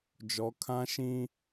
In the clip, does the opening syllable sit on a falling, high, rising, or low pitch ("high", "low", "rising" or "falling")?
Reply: rising